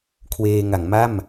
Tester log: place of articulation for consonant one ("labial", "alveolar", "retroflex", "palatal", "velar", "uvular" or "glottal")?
velar